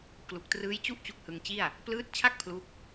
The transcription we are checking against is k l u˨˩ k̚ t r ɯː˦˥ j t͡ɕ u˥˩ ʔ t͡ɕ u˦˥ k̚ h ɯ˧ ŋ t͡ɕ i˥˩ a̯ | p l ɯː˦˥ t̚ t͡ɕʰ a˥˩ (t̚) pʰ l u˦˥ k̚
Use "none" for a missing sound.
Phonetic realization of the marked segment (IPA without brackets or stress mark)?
k̚